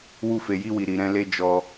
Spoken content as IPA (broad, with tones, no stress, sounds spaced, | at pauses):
w u˧ f e˨ j i˧ w i˨ ɾ i˨ ɾ ɛ̃˧ l e˧ d͡ʒ ɔ˧